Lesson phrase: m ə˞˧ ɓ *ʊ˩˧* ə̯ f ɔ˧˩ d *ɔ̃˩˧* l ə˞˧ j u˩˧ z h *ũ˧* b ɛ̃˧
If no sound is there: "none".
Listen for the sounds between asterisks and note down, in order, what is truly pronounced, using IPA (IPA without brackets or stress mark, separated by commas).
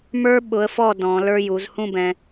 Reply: ʊ˩˧, ɔ̃˩˧, ũ˥˧